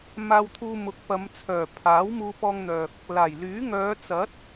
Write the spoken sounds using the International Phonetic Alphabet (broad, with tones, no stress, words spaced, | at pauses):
maː˧wt̪ʰuː˧mʊ˨˥k̚ pɐ˨˧mt͡sʰœː˨˩ pʰaː˨˥w muː˧pɔː˧ŋn̪œː˨k̚ | laː˨˩jlyː˨˥ ŋœː˨˧ t͡sɐ˨˥t̚